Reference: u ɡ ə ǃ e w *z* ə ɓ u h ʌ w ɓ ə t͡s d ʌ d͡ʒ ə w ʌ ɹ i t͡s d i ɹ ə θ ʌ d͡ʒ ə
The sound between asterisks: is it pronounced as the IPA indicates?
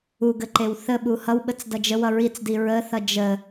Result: no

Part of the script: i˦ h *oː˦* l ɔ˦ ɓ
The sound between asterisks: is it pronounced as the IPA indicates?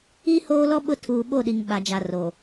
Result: yes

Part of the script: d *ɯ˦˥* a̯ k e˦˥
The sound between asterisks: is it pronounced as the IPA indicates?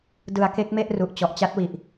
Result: no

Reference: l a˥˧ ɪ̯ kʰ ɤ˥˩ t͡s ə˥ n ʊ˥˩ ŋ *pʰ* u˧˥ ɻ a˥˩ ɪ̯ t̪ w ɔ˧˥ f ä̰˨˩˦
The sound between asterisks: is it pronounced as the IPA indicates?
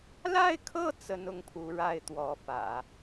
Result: yes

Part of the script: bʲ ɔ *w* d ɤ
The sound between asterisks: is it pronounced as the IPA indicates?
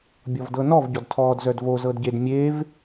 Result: no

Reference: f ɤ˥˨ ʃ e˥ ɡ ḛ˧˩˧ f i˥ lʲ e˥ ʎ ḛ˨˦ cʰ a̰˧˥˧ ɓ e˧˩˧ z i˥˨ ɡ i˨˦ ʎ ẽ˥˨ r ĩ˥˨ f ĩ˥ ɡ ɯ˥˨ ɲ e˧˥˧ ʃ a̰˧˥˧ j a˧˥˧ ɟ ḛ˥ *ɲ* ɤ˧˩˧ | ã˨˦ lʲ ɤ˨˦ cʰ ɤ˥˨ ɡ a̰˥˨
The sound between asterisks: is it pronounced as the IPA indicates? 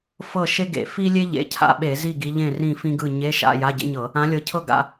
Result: yes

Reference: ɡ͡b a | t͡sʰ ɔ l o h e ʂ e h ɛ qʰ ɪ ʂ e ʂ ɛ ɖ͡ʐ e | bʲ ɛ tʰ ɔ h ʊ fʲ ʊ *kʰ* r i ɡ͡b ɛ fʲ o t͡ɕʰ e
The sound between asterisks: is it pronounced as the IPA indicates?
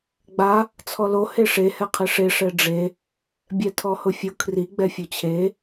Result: yes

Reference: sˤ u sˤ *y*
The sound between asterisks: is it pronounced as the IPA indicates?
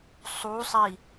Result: no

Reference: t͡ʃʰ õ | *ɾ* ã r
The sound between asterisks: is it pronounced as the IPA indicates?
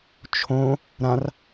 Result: yes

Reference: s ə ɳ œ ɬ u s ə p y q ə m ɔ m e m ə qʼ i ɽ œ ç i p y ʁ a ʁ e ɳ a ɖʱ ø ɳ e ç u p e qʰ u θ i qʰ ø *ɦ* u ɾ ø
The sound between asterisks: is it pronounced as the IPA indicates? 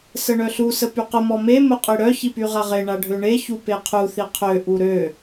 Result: no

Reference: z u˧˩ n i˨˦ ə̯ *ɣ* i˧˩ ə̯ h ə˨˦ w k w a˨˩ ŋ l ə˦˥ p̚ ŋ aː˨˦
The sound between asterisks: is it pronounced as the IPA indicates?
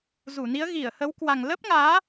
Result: yes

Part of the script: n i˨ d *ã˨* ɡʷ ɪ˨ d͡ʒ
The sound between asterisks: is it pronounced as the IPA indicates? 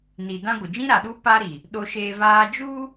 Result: no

